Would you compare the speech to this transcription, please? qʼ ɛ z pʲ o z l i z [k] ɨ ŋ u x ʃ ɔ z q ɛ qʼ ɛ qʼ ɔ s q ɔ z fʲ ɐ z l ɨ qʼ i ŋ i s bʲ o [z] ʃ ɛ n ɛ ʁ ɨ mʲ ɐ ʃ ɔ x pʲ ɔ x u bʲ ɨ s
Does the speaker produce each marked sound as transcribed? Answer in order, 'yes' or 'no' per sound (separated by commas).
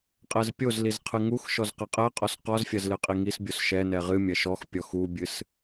no, no